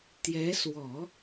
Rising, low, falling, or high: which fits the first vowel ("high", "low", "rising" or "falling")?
rising